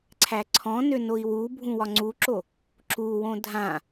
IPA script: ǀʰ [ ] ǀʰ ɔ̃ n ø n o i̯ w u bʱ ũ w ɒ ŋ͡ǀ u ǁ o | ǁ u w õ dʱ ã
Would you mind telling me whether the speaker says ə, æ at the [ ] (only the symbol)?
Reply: æ